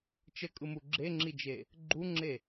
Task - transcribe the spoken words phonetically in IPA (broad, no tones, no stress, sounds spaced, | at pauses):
t͡ʃ ə kʼ ɯ m u ɡ͡ǁ e ŋ͡ǁ i d͡ʒ e | ɡ͡ǃ u ŋ͡ǁ e